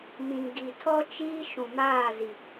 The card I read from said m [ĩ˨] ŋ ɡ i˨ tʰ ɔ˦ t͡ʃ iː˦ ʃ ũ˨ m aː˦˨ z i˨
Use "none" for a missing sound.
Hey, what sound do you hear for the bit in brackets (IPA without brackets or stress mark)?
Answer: ĩ˨